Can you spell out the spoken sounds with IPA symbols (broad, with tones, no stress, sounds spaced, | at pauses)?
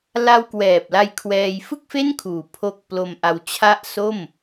l a˧ w k w ɛː˨˩ p̚ l a˧ j kʰ w ɛː˧ j f ɯ˥˩ k̚ f e˥˩ n kʰ uː˨˩ pʰ o˦˥ k̚ p l o˧ m ʔ a˧ w t͡ɕʰ a˦˥ ʔ s o˥˩ m